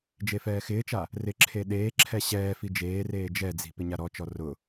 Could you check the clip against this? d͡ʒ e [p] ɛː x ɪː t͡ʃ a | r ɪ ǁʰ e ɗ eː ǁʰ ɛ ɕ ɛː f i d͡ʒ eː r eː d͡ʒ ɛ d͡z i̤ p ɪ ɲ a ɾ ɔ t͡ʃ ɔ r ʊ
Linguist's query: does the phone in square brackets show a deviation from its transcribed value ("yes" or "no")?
yes